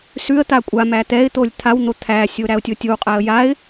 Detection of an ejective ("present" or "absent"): present